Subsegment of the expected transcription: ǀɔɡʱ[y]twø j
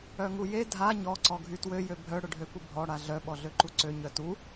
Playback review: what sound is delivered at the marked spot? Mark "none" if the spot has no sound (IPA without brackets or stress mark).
y